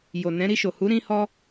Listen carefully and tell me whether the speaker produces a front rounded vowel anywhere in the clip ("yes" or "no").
no